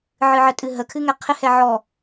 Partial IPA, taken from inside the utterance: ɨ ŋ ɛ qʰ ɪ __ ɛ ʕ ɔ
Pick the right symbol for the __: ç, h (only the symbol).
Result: h